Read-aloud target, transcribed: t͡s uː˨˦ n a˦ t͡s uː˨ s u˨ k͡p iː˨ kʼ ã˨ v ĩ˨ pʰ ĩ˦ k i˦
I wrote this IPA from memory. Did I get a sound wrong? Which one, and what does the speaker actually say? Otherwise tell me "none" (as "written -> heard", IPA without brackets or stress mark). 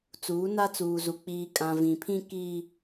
s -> z